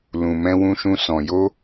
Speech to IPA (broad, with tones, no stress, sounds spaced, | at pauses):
l ũ˧ m ɛ̃˦ w ũ˦ ʃ ũ˦ s ɔ̃˧ j o˦